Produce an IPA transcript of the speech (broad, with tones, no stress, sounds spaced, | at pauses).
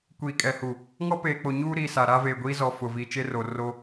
kʷ iː˨ kʼ ɛ˨ h uː˨ | ŋ ɔ˦ p eː˨ k͡p o˨ ɲ uː˦ ɾ iː˨ s a˨ ɾ a˦ v eː˨ ɡʷ iː˦ z ɔ˨ f ʊ˨ v iː˨ t͡ʃ e˦ r o˨ r o˦